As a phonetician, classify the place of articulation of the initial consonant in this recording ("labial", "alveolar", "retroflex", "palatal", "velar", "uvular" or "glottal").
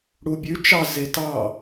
retroflex